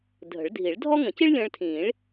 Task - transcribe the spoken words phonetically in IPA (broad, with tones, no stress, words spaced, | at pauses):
dʱə̤˨˩˦ɭdʱi˨˩˦ɭdʱɔ˥ ŋə̃˨˩˦ci˥ɭlʲə̃ː˧ɭtʰĩː˨˩˦ɭ